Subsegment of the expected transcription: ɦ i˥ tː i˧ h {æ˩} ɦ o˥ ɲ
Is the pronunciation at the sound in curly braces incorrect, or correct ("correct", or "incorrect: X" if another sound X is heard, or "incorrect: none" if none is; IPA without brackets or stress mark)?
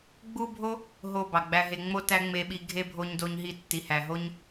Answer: incorrect: æ˧